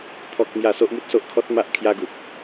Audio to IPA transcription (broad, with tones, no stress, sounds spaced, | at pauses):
t̪ʰ ɔ˦ k̚ m j a˥˧ s o˦ ʔ m u˦ t̚ s o˦ ʔ kʰ ɔ˦ t̚ m a˦ ʔ kʰ j a˦ ɡ u˦ p̚